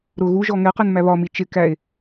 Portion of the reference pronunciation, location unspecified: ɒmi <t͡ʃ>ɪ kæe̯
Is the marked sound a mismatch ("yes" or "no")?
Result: no